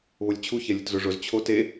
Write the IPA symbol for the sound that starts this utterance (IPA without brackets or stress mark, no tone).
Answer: β